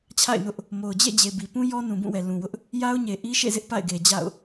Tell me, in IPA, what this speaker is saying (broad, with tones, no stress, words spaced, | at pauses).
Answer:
t͡ɕʰa̰˦˨ɪ̯nʊ˦ʔ | mo˨ʊ̯ d͡ʑḛ˦˨d͡ʑe˨ bi˨pũ˦ jɔ˦nũ˨bũ˦˨wɛ˨ lũ˨wʊ˦ʔ | ja˦ʊ̯ɲe˨ ʔi˦ʃḛ˦˨zɪ˦ʔ pa̰˦˨ɪ̯ɡe˨d͡ʑa̰˦˨ʊ̯